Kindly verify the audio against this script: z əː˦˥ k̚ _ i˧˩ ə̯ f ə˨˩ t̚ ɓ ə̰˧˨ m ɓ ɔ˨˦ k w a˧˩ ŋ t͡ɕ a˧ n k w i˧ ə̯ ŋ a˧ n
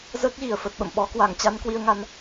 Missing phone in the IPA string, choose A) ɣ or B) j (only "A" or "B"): A